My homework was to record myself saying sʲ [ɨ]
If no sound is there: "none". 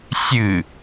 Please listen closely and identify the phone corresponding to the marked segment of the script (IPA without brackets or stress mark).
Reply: ɨ